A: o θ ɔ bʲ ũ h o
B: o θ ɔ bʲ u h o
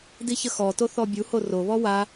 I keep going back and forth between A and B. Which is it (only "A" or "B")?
B